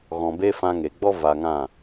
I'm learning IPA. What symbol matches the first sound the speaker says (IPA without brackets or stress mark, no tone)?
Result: ɣ